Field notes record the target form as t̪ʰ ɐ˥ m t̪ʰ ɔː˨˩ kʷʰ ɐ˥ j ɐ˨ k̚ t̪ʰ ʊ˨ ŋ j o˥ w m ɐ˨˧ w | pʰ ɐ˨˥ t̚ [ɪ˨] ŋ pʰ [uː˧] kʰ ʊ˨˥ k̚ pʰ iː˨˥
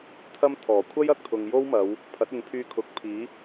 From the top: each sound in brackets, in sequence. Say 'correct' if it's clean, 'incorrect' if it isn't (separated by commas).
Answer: correct, incorrect